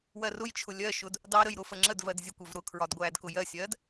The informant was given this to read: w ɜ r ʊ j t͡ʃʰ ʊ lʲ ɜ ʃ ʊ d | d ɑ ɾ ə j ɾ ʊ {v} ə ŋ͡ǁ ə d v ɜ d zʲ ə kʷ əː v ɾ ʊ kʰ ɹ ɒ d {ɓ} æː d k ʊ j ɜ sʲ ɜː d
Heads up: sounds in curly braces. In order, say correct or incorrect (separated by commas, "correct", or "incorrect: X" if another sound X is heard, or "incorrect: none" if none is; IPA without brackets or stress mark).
incorrect: f, incorrect: ɡʷ